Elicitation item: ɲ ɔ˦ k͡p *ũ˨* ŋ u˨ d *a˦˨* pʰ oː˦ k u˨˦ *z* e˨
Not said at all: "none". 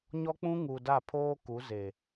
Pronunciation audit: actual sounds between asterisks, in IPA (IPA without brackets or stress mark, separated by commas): ũ˦, a˦˨, z